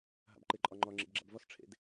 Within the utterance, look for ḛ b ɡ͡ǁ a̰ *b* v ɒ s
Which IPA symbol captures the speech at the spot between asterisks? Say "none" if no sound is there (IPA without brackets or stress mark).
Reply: b